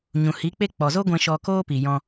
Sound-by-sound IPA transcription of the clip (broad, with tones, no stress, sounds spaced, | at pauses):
ɲ ũ˨ h i˨˦ k͡p e˦ k͡p ɔ˨ z o˦ ɡʷ ɛ̃˧ ʃ ɔ˧ k oː˦ p i˨ j ɔ̃˧